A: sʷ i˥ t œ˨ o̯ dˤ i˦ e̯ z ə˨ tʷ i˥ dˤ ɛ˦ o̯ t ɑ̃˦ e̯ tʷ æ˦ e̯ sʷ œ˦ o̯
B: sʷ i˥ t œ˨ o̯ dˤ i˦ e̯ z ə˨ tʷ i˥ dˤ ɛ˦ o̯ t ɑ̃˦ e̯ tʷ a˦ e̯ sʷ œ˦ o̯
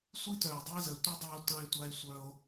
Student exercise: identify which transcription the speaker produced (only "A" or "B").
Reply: B